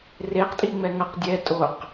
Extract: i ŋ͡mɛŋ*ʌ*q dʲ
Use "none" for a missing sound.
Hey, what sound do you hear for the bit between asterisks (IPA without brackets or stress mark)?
ʌ